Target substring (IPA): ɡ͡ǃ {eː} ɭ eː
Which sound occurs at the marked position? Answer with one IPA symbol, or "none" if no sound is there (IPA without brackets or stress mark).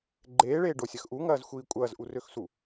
eː